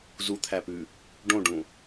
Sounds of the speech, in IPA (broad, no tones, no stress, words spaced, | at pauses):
zut̪ʰæpʉ | ɖõɖũ